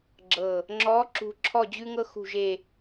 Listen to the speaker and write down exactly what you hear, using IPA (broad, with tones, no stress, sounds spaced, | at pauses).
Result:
ɡ͡ǁ ɤ˨˩ | ŋ͡ǁ ɔ˧˥ ǁ ṳ˥ ǁʰ ɔ˥˧ d͡ʑ ʉ˥ ŋ ɤ˥ x ṳ˥˧ ʒ e˥˧